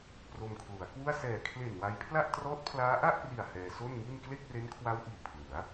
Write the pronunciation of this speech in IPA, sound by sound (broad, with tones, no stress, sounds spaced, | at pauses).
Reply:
p r o˧ m kʰ l u˩˦ a̯ k w u˥˩ a̯ s ɛː˨˩ kʰ l e˨˩ n w a˧ j pʰ l a˥˩ ʔ t r ɔː˦˥ t̚ pʰ l aː˦˥ ʔ a˥˩ ʔ p r i˨˩ a̯ h ɛː˧ s o˥˩ n ŋ i˥˩ n k l e˥˩ k̚ r e˦˥ n kʰ w a˦˥ w ʔ iː˨˩ pʰ l ɯ˩˦ a̯